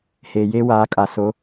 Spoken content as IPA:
heː˨jeː˦waː˨˦ kʼa˨ so˨˦

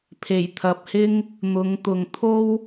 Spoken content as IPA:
pʰe˨˩jt̪ʰɐ˨p̚hɪ˥ŋ | n̪ʊ˨˧ŋt̪ʊ˨ŋt̪ʰo˥w

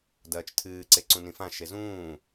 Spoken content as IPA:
dɐːt͡ʃtʰɨːǀe ǀũnĩfãʃe zũː

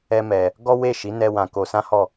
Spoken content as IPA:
ɛ˦mɛ˧ | ɡɔ˦we˦˨ʃi˨˦ nɛ˦wã˧ko˧ sã˦hɔ˦˨

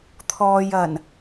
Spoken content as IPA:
t̪ʰɔː˧jɐ˨˩n

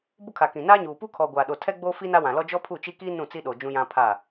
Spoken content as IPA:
bʊ˦kʰa˨kĩ˨ naː˦ɲuː˨ pu˦kʰɔ˨ ɡʷaː˨ɗo˨ tʰɛ˦ɡ͡boː˦fi˦ na˦wã˨lɔ˦ d͡ʒɔ˦pʰu˦˨t͡ʃi˦kiː˦ nũ˦˨t͡si˦ɗo˨ d͡ʒũ˦jã˦ pʰa˦˨

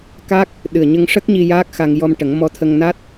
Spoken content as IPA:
ka˦˥k̚ | ɗɨ˨˩ə̯ɲə˧ŋʂə˦˥k̚ɲi˧ jaː˦˥k̚xa˧ŋ jɔ˧mʈə˨˩˦ŋ mɔ˧˥t̪ʰə˧ŋna˦˥t̚

